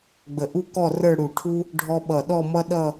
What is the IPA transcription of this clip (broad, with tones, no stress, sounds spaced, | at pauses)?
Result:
ɡ͡b ə˧˩ ʔ u˥ k ɔ˥˧ r ə˞˥˧ ɽ u˧˩ ʈʰ u˥ | ɖʱ ɔ˥ ɓ ʌ˧˩ ɗ ɔ˥˧ m ʌ˥ ɗ ʌ˥˧